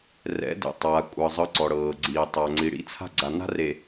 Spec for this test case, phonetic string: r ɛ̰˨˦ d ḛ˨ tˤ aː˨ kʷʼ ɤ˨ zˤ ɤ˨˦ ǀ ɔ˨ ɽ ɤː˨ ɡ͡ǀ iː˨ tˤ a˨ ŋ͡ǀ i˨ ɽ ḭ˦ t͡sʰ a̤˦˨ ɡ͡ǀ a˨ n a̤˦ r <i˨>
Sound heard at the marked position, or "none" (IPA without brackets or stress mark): e˨